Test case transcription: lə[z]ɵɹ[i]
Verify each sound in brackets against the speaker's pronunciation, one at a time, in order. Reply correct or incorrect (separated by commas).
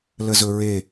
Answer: correct, incorrect